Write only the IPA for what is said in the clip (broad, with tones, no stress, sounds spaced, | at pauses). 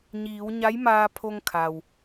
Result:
ɲ iː˩˧ w ɲ a˧˥ j m aː˧ pʰ o˧ ŋ kʰ a˩ w